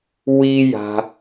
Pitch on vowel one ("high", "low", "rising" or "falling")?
high